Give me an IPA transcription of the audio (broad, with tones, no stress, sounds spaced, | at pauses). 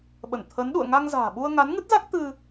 ɓ ə˧˩ n t̪ʰ ə˨˦ n ɗ ṵ˧˨ ə̯ ŋ a˧ ŋ z a̤ː˨˩ ɓ u˧ ə̯ ŋ a˨˦ n ŋ ɨ˦˥ t̚ z a˦˥ k̚ t̪ ɨ˧